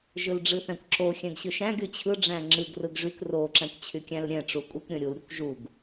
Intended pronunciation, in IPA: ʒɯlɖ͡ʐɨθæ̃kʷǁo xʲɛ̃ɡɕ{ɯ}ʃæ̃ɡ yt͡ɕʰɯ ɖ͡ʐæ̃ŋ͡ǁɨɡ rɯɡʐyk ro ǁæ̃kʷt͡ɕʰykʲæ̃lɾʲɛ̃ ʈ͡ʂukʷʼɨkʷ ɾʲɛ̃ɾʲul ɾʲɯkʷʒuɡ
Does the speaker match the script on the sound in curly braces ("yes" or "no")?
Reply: yes